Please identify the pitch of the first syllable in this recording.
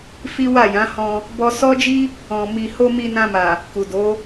high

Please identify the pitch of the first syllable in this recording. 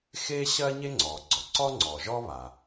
high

